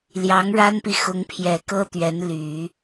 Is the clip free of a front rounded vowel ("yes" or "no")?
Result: no